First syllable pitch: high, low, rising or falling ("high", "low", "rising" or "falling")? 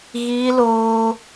high